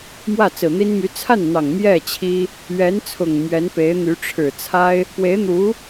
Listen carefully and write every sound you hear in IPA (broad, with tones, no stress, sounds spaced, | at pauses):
m w ä˥˩ t͡s ɹ̩˨˩ n̪ i˥ n m y˧˥ t͡sʰ a˥˩ n n̪ ɑ˨˩ ŋ m j ɛ˥˩ t͡ɕʰ i˥ | ɥ ɛ˧˥ n t͡sʰ ʊ˨˩ ŋ m ɥ ɛ˧˥ n p e˧˥ ɪ̯ n̪ y˧˥ ʈ͡ʂʰ ɻ̩˨˩ t͡sʰ a˥ ɪ̯ | p w e˧˥ ɪ̯ n̪ u˧˥